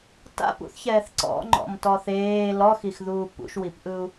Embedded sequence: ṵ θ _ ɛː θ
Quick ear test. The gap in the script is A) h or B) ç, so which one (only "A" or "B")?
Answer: B